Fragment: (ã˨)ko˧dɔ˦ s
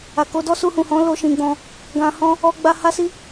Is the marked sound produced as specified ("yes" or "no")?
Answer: no